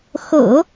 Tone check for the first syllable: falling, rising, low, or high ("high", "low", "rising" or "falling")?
low